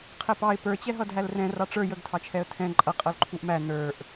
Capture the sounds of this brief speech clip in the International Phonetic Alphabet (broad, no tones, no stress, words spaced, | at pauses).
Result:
qʰɛpɑɪ̯ pə˞ t͡ɕɛɦʌdɦælrɛ̃ rɑʈ͡ʂə˞ jəɡtʰɑt͡ʃʰɛə̯ tʰɛ̃ ǃʼʌ qʼʌlǃʰuʔmæ nə˞ʔ